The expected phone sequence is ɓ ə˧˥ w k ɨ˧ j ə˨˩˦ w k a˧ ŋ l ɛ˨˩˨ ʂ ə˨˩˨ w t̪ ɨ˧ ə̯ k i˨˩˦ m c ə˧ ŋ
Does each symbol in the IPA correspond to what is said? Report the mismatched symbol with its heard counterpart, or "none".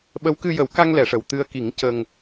m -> ŋ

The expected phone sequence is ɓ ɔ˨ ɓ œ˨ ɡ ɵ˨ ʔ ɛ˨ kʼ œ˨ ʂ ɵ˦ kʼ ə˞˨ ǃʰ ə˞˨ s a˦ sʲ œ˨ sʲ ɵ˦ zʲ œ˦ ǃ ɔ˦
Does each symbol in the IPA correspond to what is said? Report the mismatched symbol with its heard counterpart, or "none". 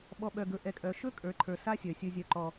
ʂ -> ʃ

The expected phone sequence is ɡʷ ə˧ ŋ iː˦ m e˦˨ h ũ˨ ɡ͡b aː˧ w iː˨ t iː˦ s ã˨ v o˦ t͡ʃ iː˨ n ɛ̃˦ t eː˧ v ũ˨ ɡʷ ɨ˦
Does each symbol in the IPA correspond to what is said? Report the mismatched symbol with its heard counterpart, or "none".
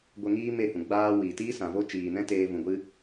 none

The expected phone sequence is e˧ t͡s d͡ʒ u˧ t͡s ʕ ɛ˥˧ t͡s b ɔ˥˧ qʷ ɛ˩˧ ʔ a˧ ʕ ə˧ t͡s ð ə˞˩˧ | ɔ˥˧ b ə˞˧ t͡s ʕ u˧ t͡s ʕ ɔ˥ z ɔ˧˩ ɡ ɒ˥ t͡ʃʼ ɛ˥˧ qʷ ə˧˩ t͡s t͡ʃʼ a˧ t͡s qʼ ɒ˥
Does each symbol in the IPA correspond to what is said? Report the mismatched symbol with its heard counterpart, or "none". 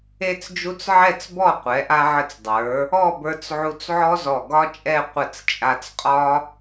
ð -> dˤ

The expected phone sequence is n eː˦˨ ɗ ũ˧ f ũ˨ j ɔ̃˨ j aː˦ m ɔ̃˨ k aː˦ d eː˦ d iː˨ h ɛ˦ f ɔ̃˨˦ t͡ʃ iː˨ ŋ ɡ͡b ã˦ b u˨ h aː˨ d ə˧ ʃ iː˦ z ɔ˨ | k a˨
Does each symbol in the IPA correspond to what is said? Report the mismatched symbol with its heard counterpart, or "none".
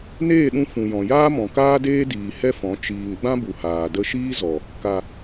none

